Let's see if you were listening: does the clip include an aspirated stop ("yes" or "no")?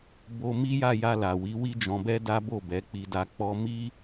no